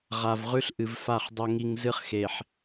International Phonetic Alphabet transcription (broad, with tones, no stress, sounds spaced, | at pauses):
ʁ a˨ v ʁ ʉ˦ ɬ ʔ ɨ˨ v f a˦˨ χ dˤ o˨ ŋ i˨ ŋ z ɨ˦ χ x e˨ ħ